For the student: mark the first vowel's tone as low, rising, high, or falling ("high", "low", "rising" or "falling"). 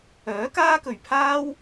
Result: rising